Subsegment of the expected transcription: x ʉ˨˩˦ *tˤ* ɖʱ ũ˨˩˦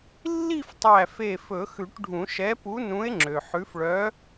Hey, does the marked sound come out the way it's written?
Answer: no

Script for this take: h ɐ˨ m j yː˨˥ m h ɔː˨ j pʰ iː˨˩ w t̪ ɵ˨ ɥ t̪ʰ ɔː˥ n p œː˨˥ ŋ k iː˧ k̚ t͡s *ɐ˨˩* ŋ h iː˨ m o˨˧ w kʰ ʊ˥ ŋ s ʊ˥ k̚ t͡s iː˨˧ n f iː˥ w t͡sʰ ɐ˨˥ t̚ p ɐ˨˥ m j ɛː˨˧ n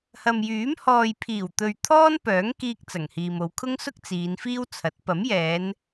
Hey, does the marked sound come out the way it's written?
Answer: yes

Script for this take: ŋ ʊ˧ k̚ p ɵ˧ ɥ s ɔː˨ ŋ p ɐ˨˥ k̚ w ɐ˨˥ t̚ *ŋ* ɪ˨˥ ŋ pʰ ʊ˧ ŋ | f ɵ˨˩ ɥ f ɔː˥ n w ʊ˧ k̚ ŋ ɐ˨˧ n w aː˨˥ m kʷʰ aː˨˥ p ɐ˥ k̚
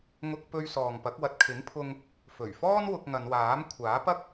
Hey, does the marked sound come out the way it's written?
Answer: no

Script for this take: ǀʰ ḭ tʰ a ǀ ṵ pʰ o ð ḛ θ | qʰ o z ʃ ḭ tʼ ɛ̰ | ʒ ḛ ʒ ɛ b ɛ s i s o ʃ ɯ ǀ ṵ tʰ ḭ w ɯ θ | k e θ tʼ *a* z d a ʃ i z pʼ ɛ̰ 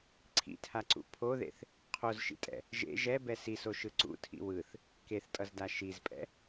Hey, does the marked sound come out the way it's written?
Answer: no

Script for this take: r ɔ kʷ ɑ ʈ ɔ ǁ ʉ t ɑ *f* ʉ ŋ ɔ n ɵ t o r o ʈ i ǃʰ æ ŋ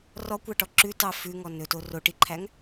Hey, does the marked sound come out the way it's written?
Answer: yes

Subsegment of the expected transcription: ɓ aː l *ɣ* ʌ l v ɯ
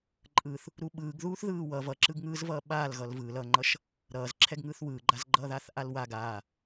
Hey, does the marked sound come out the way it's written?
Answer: yes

